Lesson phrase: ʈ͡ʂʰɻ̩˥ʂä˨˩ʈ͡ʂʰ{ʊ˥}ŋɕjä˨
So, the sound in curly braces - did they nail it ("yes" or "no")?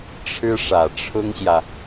yes